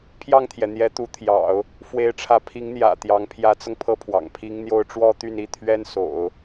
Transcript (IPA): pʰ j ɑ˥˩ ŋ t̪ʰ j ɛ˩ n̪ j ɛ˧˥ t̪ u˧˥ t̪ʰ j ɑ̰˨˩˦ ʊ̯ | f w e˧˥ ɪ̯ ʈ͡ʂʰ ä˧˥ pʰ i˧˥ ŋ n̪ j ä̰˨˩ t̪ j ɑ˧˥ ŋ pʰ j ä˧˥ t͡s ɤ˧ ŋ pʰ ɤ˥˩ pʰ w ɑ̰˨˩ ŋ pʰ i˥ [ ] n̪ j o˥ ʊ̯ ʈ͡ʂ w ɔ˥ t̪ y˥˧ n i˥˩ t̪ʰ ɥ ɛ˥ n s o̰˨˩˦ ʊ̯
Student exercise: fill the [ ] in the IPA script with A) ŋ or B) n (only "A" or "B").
A